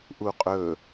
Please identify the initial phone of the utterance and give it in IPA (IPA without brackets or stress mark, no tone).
ʔ